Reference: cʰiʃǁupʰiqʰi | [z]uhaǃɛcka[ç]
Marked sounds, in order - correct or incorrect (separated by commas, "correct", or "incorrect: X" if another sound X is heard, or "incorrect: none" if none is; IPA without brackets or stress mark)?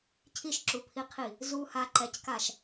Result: correct, incorrect: ʃ